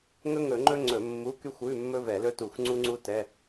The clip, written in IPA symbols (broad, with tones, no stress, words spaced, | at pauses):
ŋɵ˥ŋɵ˧˩˧ŋ͡ǃɵ˥ ŋ͡ǀɵ˧˩˧mːu˧˥˧ ky˥xʷʉ˧˥˧ mːɵ˥vɛ˧˩˧lɵ˥tu˧˩˧xʷ ŋ͡ǀu˥ŋ͡ǀu˥ tɛ˧˥˧